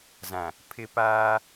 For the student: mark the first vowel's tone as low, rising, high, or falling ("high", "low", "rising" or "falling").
low